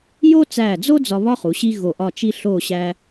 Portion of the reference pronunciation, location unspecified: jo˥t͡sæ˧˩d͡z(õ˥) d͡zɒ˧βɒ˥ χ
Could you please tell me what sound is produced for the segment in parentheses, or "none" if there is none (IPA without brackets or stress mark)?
o˥